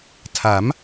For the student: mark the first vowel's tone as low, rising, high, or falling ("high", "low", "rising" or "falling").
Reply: rising